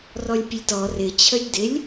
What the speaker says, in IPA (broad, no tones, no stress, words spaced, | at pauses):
rɔlʲpʲəlʲtɔ rɪ t͡ɕʰəlʲdɪlʲ